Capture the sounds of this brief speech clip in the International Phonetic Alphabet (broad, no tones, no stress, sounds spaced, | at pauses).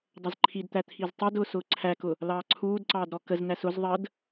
dˤ ʌ z ǃʰ i d t̪ æ t̪ʰ i z tˤ əː d ʊː s ʊː ǀʰ æ k ʊ | l ɑː ǀʰ uː d ǀ ɑː d ɾ ɔ k ə z n æ s ʊ z ðˤ əː d